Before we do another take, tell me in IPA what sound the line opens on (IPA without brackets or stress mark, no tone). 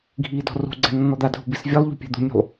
ɡʱ